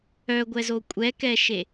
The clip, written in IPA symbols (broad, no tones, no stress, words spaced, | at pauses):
œɡʷɛzo kʷʼɛkɛʃe